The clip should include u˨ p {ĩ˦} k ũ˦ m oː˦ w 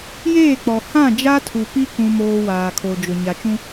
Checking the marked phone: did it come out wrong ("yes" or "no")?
yes